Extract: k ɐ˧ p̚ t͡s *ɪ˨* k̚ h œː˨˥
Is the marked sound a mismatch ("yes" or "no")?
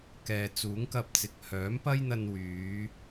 no